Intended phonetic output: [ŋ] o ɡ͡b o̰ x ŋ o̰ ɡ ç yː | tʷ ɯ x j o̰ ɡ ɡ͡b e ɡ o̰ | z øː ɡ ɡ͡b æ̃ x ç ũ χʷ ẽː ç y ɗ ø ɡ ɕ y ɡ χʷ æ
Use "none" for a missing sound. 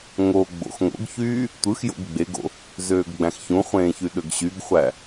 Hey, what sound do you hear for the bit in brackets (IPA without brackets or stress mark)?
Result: ŋ